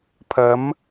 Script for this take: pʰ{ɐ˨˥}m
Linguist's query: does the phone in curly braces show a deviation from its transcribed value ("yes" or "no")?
no